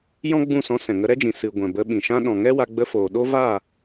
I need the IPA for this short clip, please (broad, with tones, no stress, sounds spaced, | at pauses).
j ɔ̃˦ ɡ͡b ũ˦˨ s ɔ̃˧ s ɛ̃˨ ŋ ə˧ ɾ ɛ˦ d͡ʒ ĩ˨ s ɨ˨ ɡʷ ɛ̃˨ b ə˧ ɓ ĩ˨ ʃ ã˦ ɗ ɔ̃˨ ŋ ɛ˦ w a˧ ɡ͡b ə˧ f oː˨ ɗ o˦ v a˦˨